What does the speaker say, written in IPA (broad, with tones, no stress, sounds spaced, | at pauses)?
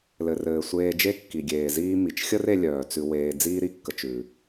l ɘ˩ r ɘː˩ sʷ eː˧ d͡ʒ e˥ kː i˩ ɡʲ eː˩ z iː˥ m i˩ t͡ʃ xʲ ə˥ r e˧ lʲ œː˩ t͡s ʉ˧ w eː˧ d͡z iː˥ ɾ i˧ kː ə˧ t͡ʃ ʉ˩